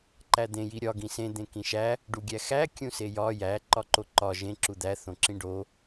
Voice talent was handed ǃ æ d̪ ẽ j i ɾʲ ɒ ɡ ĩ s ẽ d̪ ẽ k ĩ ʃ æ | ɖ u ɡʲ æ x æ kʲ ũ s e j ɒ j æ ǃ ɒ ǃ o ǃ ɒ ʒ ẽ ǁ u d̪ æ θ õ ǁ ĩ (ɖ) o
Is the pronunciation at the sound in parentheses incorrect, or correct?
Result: correct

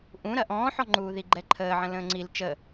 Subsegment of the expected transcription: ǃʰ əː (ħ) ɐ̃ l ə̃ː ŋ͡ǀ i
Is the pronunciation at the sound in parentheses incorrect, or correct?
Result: incorrect: ʕ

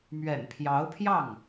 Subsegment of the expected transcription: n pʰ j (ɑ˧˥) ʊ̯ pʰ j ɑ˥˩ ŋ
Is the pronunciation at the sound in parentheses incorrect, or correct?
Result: correct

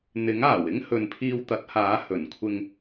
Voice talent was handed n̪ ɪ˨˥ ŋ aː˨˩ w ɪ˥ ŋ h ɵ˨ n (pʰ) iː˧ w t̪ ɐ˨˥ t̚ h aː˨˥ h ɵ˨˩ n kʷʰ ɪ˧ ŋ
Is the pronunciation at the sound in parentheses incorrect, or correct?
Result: correct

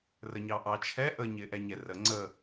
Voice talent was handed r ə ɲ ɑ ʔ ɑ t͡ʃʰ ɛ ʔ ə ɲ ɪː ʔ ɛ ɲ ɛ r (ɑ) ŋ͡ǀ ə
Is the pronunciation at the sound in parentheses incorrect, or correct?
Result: incorrect: ə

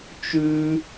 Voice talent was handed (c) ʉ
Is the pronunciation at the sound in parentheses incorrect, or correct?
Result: incorrect: t͡ʃ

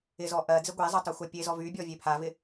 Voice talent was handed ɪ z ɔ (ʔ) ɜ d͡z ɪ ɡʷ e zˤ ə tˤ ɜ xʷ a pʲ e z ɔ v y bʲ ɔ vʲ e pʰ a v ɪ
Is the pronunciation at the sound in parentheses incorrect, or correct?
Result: correct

